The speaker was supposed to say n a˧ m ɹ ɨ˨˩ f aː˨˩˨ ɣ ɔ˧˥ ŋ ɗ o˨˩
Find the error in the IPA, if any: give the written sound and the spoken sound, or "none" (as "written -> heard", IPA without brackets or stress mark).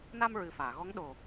none